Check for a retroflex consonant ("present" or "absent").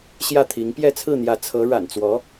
present